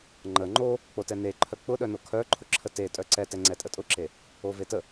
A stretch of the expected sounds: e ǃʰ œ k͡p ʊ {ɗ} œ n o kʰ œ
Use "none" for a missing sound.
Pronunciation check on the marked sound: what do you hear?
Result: ɗ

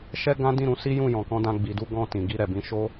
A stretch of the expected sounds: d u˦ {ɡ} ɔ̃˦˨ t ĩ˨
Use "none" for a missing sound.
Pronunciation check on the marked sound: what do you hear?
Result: ɡ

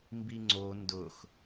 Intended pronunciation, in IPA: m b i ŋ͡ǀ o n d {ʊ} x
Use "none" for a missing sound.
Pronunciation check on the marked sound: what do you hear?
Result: ʊ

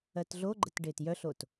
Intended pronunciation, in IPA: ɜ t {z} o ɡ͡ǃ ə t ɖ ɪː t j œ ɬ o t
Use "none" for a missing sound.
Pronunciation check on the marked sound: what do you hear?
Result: ɮ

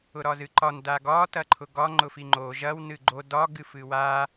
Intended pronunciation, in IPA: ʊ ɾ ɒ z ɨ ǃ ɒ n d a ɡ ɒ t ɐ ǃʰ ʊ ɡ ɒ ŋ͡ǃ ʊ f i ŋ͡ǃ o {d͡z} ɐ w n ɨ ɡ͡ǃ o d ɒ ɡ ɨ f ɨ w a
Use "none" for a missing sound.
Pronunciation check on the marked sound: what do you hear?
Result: ʒ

